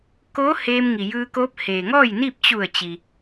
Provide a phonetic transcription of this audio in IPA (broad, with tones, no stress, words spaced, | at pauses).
koː˧˥ heː˧mŋi˩jɯː˧koː˧˥p̚ heː˩ŋɔː˥˨jni˥˨p̚ t͡ɕu˧˩ə̯ t͡ɕi˩